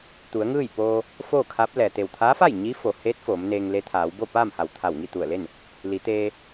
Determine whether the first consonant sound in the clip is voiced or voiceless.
voiceless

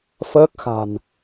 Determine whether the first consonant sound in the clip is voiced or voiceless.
voiceless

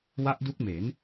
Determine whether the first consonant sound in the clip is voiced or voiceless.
voiced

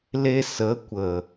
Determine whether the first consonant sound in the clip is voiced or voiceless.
voiced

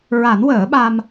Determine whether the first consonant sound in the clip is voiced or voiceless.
voiced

